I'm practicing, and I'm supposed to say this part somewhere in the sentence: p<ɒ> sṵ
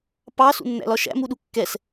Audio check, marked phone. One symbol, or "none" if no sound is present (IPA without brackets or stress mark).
ɑ